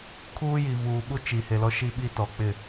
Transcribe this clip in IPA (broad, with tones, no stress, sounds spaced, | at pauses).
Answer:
kʰ uː˦ j i˨ v uː˨ ɓ u˦ t͡ʃ i˨ h e˨ l ɔ˦ ʃ i˦ ɓ i˦ t ɔ˨ k͡p ɪ˦˨